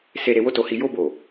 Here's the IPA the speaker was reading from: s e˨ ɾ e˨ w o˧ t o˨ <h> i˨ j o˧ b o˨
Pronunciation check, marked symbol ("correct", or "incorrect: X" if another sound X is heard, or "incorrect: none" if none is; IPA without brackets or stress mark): correct